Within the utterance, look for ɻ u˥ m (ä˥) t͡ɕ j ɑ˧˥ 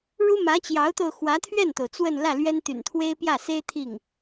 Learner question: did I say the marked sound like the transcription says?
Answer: no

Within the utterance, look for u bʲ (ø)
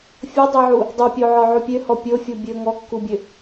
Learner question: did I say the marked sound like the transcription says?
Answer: yes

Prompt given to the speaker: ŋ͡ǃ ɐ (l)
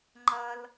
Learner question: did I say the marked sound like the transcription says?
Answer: yes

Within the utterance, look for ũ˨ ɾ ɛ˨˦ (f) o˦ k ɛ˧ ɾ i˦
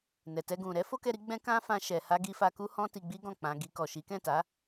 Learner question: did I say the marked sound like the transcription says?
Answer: yes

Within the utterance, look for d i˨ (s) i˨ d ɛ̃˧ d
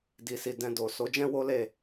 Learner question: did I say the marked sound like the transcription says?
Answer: yes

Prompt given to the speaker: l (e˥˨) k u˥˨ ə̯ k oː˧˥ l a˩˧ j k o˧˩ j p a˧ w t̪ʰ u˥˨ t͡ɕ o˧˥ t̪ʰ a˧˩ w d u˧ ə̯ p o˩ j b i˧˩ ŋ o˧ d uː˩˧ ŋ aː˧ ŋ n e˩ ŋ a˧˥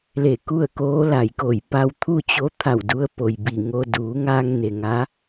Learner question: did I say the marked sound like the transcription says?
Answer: no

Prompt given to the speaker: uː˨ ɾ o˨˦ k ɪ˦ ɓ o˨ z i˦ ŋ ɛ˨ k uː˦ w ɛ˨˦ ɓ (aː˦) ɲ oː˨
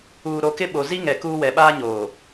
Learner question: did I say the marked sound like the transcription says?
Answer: yes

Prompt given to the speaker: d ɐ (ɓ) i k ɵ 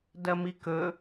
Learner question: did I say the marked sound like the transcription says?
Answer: no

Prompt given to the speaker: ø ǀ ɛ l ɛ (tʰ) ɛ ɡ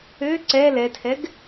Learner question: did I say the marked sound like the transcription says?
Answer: yes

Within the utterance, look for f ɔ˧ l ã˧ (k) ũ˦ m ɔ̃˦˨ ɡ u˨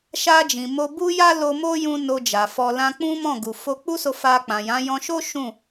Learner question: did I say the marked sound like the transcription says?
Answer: no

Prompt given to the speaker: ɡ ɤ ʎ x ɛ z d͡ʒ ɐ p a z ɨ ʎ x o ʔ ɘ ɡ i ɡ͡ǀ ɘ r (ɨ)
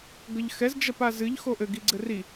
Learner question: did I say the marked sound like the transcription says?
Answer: no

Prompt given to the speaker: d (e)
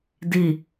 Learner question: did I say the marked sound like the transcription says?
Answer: no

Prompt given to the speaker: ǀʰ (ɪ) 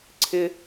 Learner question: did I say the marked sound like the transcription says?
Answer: yes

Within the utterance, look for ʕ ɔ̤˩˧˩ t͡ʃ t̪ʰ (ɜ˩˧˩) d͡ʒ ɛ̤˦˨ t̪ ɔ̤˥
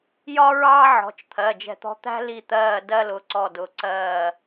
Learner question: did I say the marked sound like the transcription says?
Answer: yes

